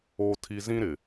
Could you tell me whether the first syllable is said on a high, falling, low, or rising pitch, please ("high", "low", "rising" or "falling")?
high